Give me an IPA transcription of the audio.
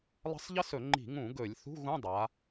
lˠ ə̤˥ sˤ ʎ ə˥ s ɵ˧˩˧ ŋ͡ǃ i̤˧˩˧ ŋ ũ˧˩˧ ɡ ɵ˧˩˧ lʲ θ ṳ˧˥˧ ɣ ũ˧˥˧ dˤ a˩˧

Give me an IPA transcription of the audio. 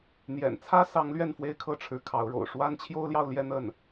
n̪ j ɛ̰˨˩ n t͡sʰ ä˥ s ɑ˧˥ ŋ l ɥ ɛ˥˩ n f w e˥ ɪ̯ kʰ ɤ˥˩ ʈ͡ʂʰ ɻ̩˧˥ kʰ ɑ˧˥ ʊ̯ ɻ o̰˨˩ ʊ̯ ʂ w a˥ n t͡ɕʰ j o˥ ʊ̯ l j ɑ˥˧ ʊ̯ l j ɛ˥˧ n̪ ə˥˩ n

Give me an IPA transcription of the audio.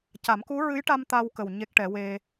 c a˨˩˦ m k u˧˥ ɹ ɨ˧˥ j ʈ a˧ m t̪ a˧ w k ə˨˩ w ɲ e˦˥ k̚ ʈ ɛ˨˩˦ w e˧

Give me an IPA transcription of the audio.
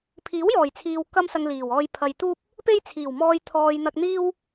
pʰ iː˨˥ w j ɔː˨˩ j t͡sʰ iː˨ w k ɐ˥ m s ɐ˧ ŋ l iː˨˩ w ɔː˧ j pʰ ɐ˨ j t̪ uː˥ p̚ | p e˥ j t͡sʰ iː˨˩ w m ɔː˧ j t̪ʰ ɔː˨ j n̪ ɐ˧ k̚ n̪ iː˥ w

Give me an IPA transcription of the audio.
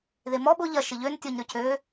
ð e m ɔ ɓ ʊ ʎ ɐ ʃ ɪ ʎ ø n tʲ ɔ ɲ ɾ ʏ cʰ ø

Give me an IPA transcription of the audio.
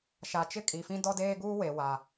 ʃ a˨ t͡ʃ ɪ˦ kʼ i˨ f ĩ˦ d ɔ˦ d eː˦ ɡ uː˦ w e˨ w a˨

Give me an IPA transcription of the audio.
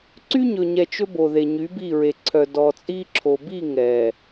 ǀ y˦ ɲ ɵ˨ ɲ ɛ˨ t͡ʃ ɵ˦ b o˨ ð e˨ ɲ y˨˦ b i˦˨ ɹ e˨ ǀʰ œ˨ d ɔ˨ t͡sʼ i˦ ǁʰ o˨ b i˦˨ ŋ ɛ˨

